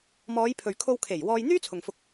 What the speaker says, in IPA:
m ɔː˨˧ j pʰ ɵ˨ ɥ kʰ o˧ w kʰ e˨˩ j w ɔː˧ j n̪ yː˥ t͡sʰ ʊ˨ ŋ f ʊ˧ k̚

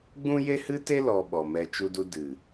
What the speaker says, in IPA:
ɡ͡b ũ˦ j e˦ h ɨ˦ t e˦ l ɔ˧ ɓ ɔ˨ m ɛ˧ t͡ʃ u˧ d u˧ d ɨ˨

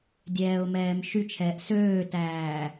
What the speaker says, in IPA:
dʲ ɛː ʊ̯ m ɛː m ʃ y t͡ʃʰ ɛː ʔ s øː t æː

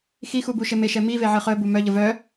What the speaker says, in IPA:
x i x u b u ʃ e m e ʃ ɛ m i v e ʕ ɨ χ œ b u m œ ʎ ə v œ

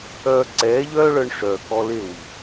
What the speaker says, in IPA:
œː˧ ǀ ɛː˨˦ ʎ œː˦ ɭ œ˧ ɳ ʂ œ˨ k ɔ˧ l e˦˨ w i˨

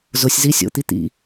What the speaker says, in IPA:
z ʊ sʲ z i sʲ o̰ t̪ i t̪ ḭ

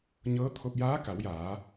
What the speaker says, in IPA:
ɲ ɤː˧˥ t̪ʰ o˧ p̚ j aː˧˥ k a˩˧ w j aː˩˧

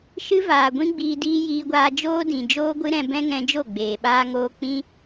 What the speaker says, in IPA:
ʃ ɨ˦ v aː˨ ɡʷ ĩ˦ ɡ͡b iː˧ d iː˦ j iː˦ ɡʷ aː˦ d͡ʒ oː˦ d ĩ˨ d͡ʒ oː˦ ɡʷ ɨ˦ ɾ ɛ̃˧ b ɛ̃˦ ŋ ɛ̃˧ d͡ʒ o˦˨ ɡ͡b eː˨ ɓ aː˦ ŋ oː˦ k͡p ĩ˦

